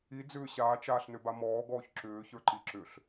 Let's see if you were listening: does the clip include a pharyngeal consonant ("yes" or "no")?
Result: no